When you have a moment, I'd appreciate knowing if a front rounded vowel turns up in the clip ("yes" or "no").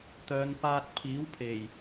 yes